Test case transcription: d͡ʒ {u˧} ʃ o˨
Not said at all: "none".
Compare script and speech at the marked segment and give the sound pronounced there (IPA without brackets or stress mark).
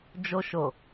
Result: o˧